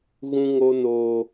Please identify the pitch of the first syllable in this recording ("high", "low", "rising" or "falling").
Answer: high